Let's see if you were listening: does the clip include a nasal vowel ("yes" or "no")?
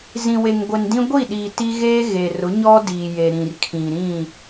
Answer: yes